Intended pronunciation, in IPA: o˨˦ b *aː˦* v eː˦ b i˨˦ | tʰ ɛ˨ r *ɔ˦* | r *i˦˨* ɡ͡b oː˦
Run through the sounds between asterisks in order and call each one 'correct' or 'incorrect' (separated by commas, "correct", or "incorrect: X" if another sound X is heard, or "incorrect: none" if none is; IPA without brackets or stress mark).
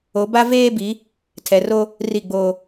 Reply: incorrect: a˦, incorrect: o˦, correct